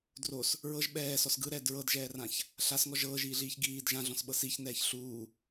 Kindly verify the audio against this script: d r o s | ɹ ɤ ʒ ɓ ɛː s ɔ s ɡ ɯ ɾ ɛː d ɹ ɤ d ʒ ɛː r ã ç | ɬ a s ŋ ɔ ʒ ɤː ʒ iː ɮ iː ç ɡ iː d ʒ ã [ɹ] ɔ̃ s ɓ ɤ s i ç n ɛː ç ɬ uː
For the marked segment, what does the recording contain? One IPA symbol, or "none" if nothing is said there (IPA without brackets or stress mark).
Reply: ɮ